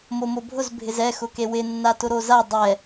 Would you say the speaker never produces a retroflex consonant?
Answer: yes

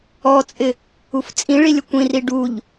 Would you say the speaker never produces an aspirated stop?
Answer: yes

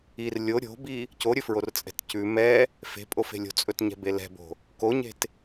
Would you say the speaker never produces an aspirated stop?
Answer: yes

